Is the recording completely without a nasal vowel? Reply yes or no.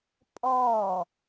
yes